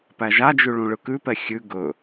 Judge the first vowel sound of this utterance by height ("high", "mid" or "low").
low